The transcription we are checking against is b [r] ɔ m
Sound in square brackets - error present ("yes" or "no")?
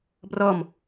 no